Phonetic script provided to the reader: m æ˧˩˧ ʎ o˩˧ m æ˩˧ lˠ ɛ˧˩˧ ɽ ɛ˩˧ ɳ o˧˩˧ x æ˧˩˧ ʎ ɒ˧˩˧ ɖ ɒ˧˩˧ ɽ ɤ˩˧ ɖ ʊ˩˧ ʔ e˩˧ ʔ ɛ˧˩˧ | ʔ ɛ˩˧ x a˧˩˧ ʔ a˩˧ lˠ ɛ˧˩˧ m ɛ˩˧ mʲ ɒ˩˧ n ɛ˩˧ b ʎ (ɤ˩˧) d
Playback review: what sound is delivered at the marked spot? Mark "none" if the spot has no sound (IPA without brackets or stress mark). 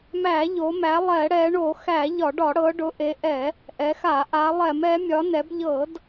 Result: ɤ˧˩˧